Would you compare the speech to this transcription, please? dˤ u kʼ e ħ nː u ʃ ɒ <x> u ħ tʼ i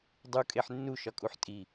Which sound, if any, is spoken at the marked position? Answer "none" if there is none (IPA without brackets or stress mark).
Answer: kʼ